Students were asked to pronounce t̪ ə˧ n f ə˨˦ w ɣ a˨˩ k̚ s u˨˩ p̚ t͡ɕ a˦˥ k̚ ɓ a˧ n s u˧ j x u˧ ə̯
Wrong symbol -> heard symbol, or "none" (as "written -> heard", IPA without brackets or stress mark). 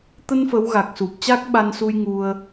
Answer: x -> ŋ